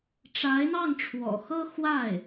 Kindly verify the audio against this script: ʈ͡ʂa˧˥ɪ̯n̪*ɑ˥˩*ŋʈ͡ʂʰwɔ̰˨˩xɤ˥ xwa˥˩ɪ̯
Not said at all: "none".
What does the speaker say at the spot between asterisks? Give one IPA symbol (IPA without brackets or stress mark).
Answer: ɑ˥˩